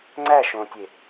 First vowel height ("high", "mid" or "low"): low